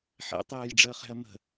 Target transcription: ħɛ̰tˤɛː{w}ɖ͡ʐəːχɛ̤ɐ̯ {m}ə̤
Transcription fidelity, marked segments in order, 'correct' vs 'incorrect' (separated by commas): incorrect, correct